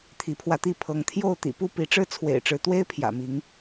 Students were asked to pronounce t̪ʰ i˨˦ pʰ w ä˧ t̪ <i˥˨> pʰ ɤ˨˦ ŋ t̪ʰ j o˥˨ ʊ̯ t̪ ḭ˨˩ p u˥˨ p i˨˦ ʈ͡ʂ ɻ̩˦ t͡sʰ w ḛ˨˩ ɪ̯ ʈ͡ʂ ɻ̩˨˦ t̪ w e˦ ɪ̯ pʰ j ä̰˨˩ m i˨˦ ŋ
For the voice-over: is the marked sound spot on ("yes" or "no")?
yes